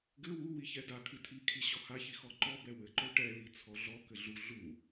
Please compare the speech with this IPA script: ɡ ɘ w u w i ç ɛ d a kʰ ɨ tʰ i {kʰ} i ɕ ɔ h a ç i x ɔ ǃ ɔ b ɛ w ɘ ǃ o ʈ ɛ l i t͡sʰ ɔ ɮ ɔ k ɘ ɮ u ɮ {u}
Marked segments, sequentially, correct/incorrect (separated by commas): correct, correct